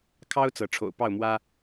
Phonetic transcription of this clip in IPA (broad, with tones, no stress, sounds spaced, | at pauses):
kʰ ɑ˦ ʊ̯ t͡s ɤ˨˦ ʈ͡ʂʰ o̰˨˩ ʊ̯ p ɑ˥˨ ʊ̯ m w ä˦